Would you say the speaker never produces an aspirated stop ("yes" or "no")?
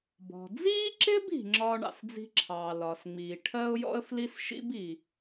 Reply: no